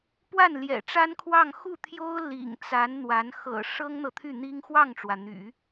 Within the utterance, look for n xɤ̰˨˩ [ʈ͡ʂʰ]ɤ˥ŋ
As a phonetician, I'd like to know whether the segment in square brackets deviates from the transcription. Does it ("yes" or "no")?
yes